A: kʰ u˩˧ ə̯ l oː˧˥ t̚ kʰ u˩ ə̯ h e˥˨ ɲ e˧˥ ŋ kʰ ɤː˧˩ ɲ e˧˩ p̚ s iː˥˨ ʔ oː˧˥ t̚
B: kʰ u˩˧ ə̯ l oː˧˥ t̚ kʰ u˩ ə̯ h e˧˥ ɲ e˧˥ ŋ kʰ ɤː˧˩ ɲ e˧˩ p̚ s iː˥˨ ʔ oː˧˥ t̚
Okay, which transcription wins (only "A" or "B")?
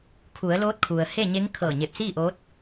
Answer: A